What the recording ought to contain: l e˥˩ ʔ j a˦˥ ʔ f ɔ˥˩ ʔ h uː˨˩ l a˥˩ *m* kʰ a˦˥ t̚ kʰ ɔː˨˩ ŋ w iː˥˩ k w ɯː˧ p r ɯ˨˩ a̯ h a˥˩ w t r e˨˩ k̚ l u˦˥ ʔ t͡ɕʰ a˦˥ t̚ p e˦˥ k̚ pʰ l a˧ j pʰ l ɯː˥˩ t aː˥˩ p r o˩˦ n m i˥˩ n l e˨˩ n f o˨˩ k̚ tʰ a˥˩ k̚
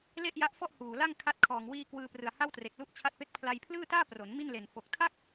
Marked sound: incorrect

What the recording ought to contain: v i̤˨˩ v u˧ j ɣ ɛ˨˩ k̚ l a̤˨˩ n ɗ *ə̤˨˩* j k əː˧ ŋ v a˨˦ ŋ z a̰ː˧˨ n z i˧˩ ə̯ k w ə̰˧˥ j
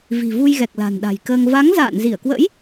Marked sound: incorrect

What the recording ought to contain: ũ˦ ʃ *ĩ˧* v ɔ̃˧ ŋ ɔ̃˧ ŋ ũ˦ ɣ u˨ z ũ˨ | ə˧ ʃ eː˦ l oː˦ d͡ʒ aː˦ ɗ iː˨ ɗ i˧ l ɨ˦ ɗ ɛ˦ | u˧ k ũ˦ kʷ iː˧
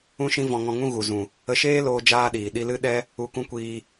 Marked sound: incorrect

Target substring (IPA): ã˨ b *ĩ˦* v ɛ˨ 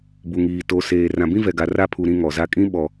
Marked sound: correct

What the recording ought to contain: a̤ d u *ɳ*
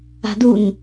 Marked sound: incorrect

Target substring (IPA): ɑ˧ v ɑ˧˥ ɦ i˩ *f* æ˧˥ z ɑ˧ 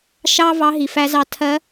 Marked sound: correct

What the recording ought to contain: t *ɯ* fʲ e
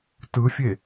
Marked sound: correct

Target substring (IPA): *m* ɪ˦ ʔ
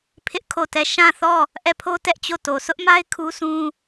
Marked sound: incorrect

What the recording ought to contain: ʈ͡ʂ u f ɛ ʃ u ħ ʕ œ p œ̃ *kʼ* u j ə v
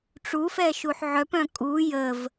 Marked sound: correct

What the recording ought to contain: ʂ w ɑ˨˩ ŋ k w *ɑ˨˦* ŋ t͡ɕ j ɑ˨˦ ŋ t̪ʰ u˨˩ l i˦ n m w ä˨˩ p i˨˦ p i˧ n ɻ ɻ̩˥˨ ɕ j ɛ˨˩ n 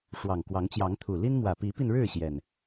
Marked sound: correct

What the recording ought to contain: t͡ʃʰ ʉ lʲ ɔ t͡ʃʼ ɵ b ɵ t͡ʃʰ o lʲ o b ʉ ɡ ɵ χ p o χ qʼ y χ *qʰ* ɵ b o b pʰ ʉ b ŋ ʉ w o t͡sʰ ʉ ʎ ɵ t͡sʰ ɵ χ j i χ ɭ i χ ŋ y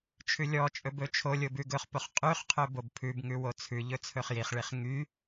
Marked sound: correct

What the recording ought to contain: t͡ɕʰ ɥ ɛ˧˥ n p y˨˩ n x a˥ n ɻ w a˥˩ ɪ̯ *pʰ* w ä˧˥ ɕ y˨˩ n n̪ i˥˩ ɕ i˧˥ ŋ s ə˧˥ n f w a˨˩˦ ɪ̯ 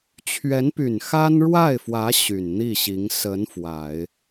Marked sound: incorrect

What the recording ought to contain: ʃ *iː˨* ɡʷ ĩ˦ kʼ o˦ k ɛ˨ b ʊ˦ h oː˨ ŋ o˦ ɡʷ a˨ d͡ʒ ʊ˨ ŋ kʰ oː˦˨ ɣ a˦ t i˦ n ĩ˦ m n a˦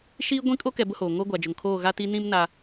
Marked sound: incorrect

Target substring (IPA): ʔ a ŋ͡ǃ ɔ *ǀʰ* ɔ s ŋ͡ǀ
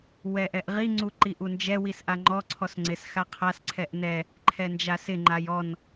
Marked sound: correct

